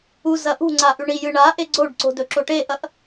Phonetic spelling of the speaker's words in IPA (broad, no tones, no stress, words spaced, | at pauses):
u zɐʔṳŋ͡ǀa ʔʉɳijɨ ɳaʔe ɡ͡ǀoɖǀo̤ dɵǁoʈeʔɐʔ